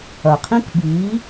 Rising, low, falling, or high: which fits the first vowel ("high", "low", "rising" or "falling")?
low